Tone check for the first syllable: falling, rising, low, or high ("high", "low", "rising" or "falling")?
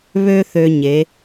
high